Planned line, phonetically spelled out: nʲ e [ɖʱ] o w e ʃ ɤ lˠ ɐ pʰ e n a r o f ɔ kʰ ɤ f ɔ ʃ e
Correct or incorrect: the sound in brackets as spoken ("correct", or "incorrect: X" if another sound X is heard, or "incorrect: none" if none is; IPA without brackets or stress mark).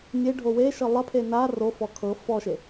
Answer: correct